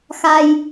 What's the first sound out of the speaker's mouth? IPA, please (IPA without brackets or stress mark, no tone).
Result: x